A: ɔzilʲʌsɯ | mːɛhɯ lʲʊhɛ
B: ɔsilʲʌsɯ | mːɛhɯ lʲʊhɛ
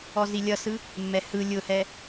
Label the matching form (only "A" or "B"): A